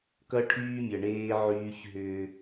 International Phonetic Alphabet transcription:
kʌ˦ʈʰyː˦mʲʌ˨ɳeː˦ ʕyː˦çɦʏː˦

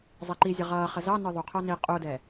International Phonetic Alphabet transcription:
zˤɛǃizʲʌ ʁʌːχə zɑnə˞ ðˤuqʰə˞ ni qʼudɛ

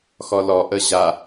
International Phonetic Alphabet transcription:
xɔlɔʔə ʑa

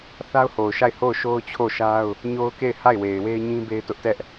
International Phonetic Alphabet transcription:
θa˦ʊ̯ho˨ʊ̯ʃa˦˨ɪ̯ ho˦˨ʊ̯ʃo˦ʊ̯t͡ɕʰo˦˨ʃa˦ʊ̯ | ɲo˦ʊ̯ke˦˨ɪ̯ ha˦˨ɪ̯we˨ɪ̯we˦ɪ̯ɲĩ˦ be˦ɪ̯tʊ˦ʔtɛ˦ʔ

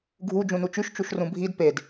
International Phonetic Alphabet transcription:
ɡʱu d͡ʒũnut͡ʃyʃ t͡ʃuʃrũbʱid ped

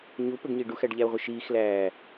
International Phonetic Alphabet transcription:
ɲupəɡ ɲiɖuxæɖ ʎæo̯ʁʷəʃiːxlæː

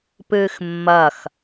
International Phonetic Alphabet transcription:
pɨːxmːɐx

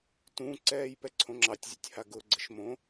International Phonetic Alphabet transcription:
tũǀɛːj pɛǀʰõŋ͡ǁɑtʲzʲo̰tʲ haɡʊɡ͡ǀəʃ mõ

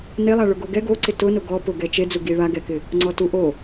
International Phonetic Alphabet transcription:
nelˠa ɭʊɡoɡɛ ɡoǀɪ tʊnʊ ɡɔ pʊɡɛ t͡ʃed͡zu ɡiɭa ɡɛkɪ | ŋ͡ǀɔtuʔo

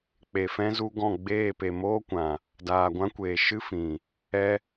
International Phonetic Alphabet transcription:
k͡pe˨fɛ̃˦zu˧ɡɔ̃˦˨ ɡ͡beː˦˨pe˨ moː˦kʷã˨ | daː˨ɡʷã˦kʷeː˨ ʃɨ˦ fĩ˨ | ɛ˦

